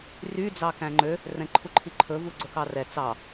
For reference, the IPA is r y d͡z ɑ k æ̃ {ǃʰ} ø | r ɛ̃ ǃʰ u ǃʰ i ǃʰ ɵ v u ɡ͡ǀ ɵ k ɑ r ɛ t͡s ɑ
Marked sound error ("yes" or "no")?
yes